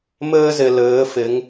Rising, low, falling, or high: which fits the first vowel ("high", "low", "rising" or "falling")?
high